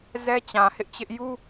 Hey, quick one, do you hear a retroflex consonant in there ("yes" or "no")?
no